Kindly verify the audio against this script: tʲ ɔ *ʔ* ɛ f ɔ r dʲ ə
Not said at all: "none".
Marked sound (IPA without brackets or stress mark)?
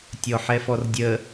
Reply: ħ